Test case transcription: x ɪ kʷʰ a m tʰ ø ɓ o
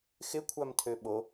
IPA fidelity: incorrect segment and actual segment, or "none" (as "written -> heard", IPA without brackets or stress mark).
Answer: none